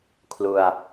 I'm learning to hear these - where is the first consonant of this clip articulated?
velum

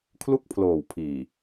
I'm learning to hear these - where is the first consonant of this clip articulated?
velum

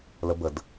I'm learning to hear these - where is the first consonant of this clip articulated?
tongue tip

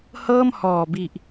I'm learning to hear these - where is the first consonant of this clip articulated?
throat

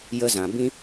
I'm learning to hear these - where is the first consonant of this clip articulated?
palate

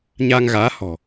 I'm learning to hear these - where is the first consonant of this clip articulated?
palate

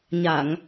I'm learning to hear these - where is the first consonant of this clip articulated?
palate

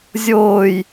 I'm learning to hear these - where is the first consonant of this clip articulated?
tongue tip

